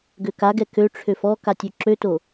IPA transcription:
ɡøkaɡɛ køʈ͡ʂʰøf ɔkatʲ øǁøto

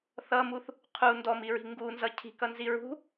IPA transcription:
θʌmuθ | qʰu ndɔmiɹi̤ ŋɡunzʌ cʰi̤kʌnzi ɹṳ

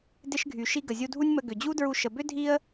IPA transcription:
dɪ˧ʃɡʱy˩ʃi˧ ɡə˩zʲu˧dʱu˥nʲmə˧ ɡʏ˩d͡ʑu˥dɹu˧ ʃə˩bʏ˥ dʱi˥ə̯

